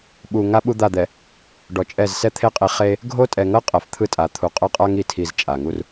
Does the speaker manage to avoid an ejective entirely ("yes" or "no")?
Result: no